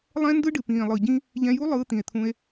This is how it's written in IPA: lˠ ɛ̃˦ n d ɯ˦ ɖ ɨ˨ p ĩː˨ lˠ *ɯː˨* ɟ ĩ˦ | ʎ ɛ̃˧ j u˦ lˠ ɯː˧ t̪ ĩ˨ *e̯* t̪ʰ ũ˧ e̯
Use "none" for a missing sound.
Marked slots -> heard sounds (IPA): ɯ˨, e̯

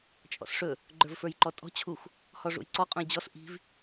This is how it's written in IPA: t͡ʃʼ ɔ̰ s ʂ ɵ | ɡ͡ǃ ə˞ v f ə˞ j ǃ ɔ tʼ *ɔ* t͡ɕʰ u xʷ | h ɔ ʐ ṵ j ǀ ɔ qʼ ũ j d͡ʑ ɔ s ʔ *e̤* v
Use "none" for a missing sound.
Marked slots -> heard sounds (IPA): ɔ̤, i̤

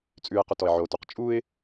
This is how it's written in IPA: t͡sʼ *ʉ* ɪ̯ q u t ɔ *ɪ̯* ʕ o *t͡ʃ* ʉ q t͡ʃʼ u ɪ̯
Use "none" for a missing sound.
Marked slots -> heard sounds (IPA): ʉ, ɪ̯, t

